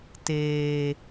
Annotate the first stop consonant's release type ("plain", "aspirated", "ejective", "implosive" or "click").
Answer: plain